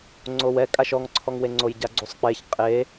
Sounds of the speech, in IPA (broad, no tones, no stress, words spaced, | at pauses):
ŋ͡ǀowɛ kʼaʃɔŋǀʰɔŋwe ŋ͡ǀojɟaɡ͡ǀusˤk͡peç qʼe